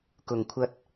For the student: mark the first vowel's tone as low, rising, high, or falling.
low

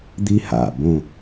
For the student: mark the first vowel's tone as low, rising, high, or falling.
high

